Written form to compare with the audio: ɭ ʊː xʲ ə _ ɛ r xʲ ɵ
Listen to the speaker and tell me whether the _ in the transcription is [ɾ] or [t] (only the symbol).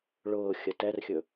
t